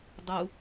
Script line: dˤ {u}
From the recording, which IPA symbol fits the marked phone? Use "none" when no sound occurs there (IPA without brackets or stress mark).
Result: u